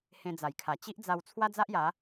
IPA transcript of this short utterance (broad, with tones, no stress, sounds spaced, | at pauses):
h ẽ˧ d͡z a˨˩ j kʰ a˨˩ t͡ɕ i˦ ʔ d͡z a˧ w t͡sʰ w a˦ d͡z a˦ ʔ j a˨˦